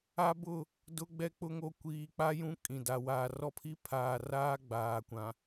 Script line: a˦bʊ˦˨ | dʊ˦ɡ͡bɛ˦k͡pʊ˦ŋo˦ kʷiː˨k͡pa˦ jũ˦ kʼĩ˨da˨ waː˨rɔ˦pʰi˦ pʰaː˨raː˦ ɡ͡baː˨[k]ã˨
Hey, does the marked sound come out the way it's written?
no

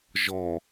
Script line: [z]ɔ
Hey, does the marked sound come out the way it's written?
no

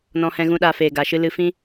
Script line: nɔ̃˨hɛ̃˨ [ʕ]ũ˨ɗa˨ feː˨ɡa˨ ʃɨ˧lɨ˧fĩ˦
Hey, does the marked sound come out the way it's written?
no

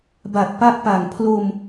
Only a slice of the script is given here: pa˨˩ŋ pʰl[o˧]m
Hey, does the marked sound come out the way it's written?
yes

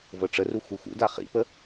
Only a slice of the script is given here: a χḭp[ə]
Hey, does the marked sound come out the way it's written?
yes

